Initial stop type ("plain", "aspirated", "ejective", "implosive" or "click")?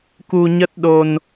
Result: plain